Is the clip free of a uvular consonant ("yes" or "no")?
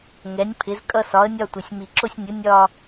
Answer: yes